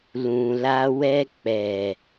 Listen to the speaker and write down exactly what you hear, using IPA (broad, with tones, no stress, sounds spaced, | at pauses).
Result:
l ũ˨ l a˧ w ɛ˧ k͡p ɛ˨